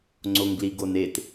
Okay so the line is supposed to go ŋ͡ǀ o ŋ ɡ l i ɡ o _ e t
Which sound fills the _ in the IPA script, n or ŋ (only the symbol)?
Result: n